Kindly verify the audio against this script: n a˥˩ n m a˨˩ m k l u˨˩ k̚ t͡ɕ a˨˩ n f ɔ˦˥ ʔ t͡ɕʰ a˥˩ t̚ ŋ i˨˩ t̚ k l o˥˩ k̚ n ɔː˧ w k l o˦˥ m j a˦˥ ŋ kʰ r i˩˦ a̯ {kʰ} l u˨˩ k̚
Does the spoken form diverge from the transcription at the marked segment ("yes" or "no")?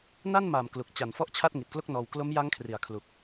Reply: no